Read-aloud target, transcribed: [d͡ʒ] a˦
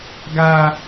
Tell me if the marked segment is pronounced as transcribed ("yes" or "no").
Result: no